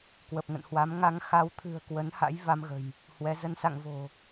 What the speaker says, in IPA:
k w ə˨˩ p̚ ŋ ə̰˧˨ n h w a˨˦ m ŋ a˧ ŋ x a˧ w t̪ʰ ɨ̤˨˩ ə̯ k w ə˨˦ n h a̰˧˥ j v a˧ m ɣ ə̤˨˩ j | h w ɛ˨˦ z ə˧ n s a̰˧˨ ŋ v o̤˨˩

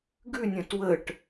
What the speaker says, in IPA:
ɡ ʉ nʲ ə̃ t w ə ʈ

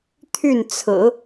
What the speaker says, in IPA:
t̪ʰ y˥˩ n t͡sʰ ɹ̩˨˩˦

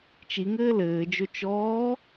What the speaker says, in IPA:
t͡ʃ i ŋ ɘː l ɘː d͡ʒ ɵ t͡ʃ ɔː

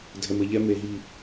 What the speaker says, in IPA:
dʱ ɛ˨ m ɘ˨ ʎ ɛ˦ m e˨ ɦ i˦˨

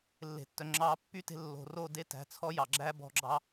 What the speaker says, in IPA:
lː e̤˨ tː œ˨ ŋ͡ǁ ɑː˧ pː y˦ t e̤˧ lː o̤˨ r o˦˨ d e˦ t æ̤˧ t͡sʰ ɔ˦ j ɑ˨ ɡ͡ǁ æ˦ b ɔ̤˧ ɡ͡ǁ ɑ˦

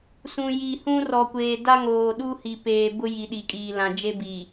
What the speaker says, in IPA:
s ũ˨ j i˨ h ũ˦ r ɔ˨ kʷ eː˨ d a˦ ŋ oː˨ ɗ u˦ h i˨ p eː˨ b ʊ˦ j i˨ ɗ i˨ kʼ iː˨ l ã˨ d͡ʒ e˦ b i˨

